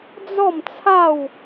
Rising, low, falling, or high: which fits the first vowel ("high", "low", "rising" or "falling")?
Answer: falling